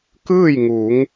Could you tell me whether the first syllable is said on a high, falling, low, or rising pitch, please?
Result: falling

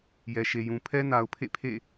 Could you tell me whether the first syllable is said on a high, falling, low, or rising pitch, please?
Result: low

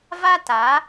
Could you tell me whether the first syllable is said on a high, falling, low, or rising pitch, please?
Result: high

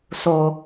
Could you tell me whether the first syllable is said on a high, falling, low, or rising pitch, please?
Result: low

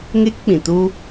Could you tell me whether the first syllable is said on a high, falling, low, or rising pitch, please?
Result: high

